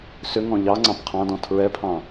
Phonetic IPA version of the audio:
sʏŋɔ̃ ʎɑ ŋ͡ǀɑ̃pqʰɑ̃dɔ̃ tʰɹɛpʰɑ̃

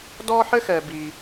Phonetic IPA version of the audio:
dɔ˥ħɘ˥xɛ˨ bi˨

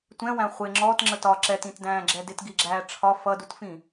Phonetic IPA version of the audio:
tʷɛ̃wæ̃ χʷɪ ŋ͡ǁɔtŋ͡ǁət ɒ ǁɛtĩtdæ̃ːɡ͡ǁɛ dɪtɡiɡ͡ǁæː ʈ͡ʂʰɒ fʌdutfĩ

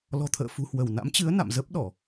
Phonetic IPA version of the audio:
lɔ̤˨˩t̪ʰə̰ː˧˨ fṳ˨˩hwə˧˩wna̰˧˥mt͡ɕɨ˨˦ə̯ na̰˧˨m zə˦˥p̚ɗɔ˧˩˨

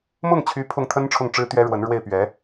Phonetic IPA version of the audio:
mʊ˥˩ŋt͡ɕʰy˧˥ pʰʊ˥˩ŋt̪ʰə˥n ʈ͡ʂʰʊ˥˩ŋʈ͡ʂɻ̩˥t̪ɥɛ˥ ɻwə˧˥n ɻwe˥˩ɪ̯pɥɛ˧˥

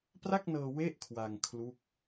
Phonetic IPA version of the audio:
pra˥˩k̚nɤː˧ we˥˩ʔkʰwa˧ŋ kʰlu˥˩k̚

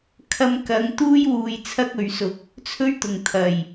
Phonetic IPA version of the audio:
kʰɐ˧mkɐ˨˧ŋt̪uː˥j wuː˧jt͡sʰɐ˥k̚ɵ˨˧ɥsʊ˧k̚ | t͡sʰɵ˥ɥt̪ʊ˨˩ŋ t̪ʰɐ˨˩j

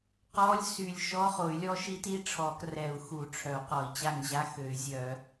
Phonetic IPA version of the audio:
qɔ˧˥˧lʲ sy˦˨lʲ ʃɔ˧˥˧χo˨˩˦y̯lʲɔ˧˥ʃi˧˥t i˧˥ʈ͡ʂʰɔ˨˩˦krɛ˨˩˦u̯ xu˨˩˦ʈ͡ʂʰœ˨˩˦u̯ qɔ˨˩˦i̯t͡ɕa˦˨ŋ ʑa˧˥˧xø˨˩˦y̯zʲœ˨˩˦

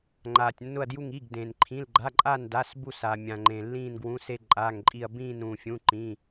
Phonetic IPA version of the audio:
ŋ͡ǃaː˩tʲnːʊ˧˩ɐ̯dju˧˩ŋ i˩˧˩ɡdẽ˩nǃʰĩ˩˧˩l ɡ͡ǃa˩˧˩ǃʼaː˧˩n da˩˧˩sbu˧˩saː˩ mʲã˩ŋ͡ǃẽ˩ lːĩː˧˩nɡwũ˩˧˩se˧˩ ǃʼaː˩˧˩ŋǃʼi˧˩ɐ̯ bĩː˧˩ nũː˩fʲũ˩˧˩ ǃĩː˩˧˩

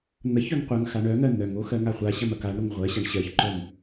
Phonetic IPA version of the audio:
n̪ɐçœŋ qʷɐŋ xaɳœŋɜ n̪œŋo xɜŋaχʷaɕɐm ɐkaɳɾoŋ ʁʷɜɕaɳ ɕɜçǃœm

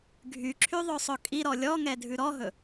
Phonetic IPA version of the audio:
ɡʱyǁʰy ðˤøsˤɵkʼiɾɔ lʲɔŋɛ dʱʉɾɔɦɵ

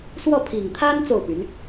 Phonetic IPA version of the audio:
swɔ˥˩pʰi˨˩ŋt̪ʰa˥n t͡so˥˩ʊ̯py˧˥n

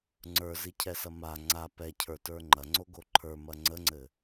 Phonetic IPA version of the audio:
ŋ͡ǀə˞zicʰɛsɐ ma ŋ͡ǀa pɛcʰə˞tə˞ ŋ͡ǃɐŋ͡ǀoɡo ǃʰə˞mɐ ŋ͡ǀəŋ͡ǀɘ

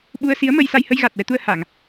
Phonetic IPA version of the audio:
ɓu˧ə̯si˧˥ə̯mə˧j sa˧jhə˧jɣa˨˩t̚wɛ˧ t̪u˧ə̯ha˨˩˨ŋ

